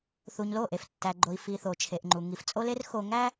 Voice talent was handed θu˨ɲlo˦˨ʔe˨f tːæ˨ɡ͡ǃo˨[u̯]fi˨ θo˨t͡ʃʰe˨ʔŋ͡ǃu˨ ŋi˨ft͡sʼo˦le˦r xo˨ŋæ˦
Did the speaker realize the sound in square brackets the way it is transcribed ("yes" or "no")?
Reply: no